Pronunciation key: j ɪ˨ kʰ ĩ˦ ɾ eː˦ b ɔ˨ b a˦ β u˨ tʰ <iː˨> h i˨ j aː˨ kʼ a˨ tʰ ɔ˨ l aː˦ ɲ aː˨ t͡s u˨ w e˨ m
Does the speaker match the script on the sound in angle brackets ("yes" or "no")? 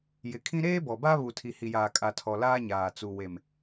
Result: no